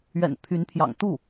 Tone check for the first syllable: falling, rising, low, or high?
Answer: low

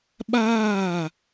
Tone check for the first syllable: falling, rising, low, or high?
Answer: falling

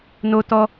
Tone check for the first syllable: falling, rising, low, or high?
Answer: high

